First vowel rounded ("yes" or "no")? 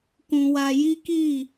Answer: yes